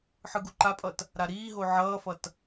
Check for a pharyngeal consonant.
present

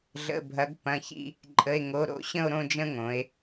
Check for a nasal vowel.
present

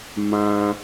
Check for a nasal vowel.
present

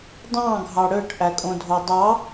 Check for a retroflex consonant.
present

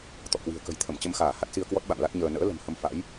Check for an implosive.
present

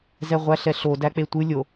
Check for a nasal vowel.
absent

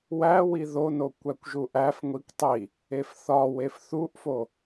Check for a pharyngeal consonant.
absent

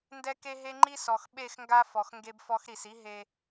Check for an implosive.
present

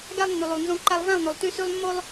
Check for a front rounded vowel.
present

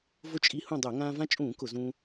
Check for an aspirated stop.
absent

